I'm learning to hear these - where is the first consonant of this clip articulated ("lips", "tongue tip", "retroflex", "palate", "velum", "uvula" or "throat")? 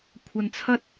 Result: velum